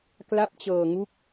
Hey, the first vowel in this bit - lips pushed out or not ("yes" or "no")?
no